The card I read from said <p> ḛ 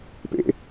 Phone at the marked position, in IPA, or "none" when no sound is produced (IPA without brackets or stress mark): p